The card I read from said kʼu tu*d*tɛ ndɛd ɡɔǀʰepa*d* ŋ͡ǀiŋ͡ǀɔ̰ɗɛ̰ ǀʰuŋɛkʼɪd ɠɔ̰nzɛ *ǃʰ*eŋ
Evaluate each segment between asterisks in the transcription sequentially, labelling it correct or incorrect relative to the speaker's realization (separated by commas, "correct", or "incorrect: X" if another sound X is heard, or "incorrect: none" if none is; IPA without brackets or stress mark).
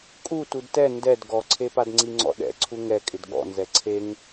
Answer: correct, correct, incorrect: ǀʰ